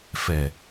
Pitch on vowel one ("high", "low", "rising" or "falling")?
low